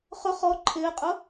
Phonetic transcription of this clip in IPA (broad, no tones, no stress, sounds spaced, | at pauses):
χ ʊ χ ɔ ǃʰ ɪː qʼ ʊ